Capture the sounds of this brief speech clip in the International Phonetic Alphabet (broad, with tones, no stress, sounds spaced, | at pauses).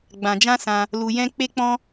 ɡ͡b ã˧ d͡ʒ ã˦ s ã˧ | l u˧ j ɛ̃˦ k͡p e˦ k͡p ɔ̃˦